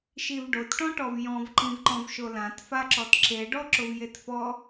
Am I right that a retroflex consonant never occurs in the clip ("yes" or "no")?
no